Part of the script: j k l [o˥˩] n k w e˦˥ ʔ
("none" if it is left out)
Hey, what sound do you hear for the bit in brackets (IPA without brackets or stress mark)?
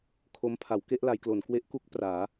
o˩˦